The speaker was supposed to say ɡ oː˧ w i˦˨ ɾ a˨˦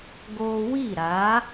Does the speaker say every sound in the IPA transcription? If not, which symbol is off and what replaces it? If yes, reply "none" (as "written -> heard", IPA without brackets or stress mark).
none